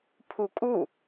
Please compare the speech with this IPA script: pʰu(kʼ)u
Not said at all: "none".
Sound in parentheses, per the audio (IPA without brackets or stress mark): kʼ